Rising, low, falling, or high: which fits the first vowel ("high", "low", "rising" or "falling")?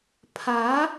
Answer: rising